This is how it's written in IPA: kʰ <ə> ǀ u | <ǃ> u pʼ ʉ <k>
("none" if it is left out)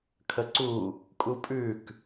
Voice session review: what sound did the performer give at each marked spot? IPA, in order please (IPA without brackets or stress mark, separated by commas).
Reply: ə, kʼ, k